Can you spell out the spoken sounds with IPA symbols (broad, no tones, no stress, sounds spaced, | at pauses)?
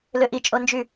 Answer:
l ø ʔ i t͡ʃʼ o n d͡ʒ y